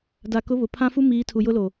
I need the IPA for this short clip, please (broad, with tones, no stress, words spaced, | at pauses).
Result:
da˨kʊ˨˦ βʊ˨pʰã˦fu˦ miː˨˦ tʰu˨jʊ˦ loː˨